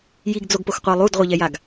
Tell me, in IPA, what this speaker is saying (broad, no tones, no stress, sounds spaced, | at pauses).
j i ɡ d͡z o ɡ p o x qʷ ɘ e̯ lˠ u d ʁʷ ɘ ʎ ɛ j a ɡ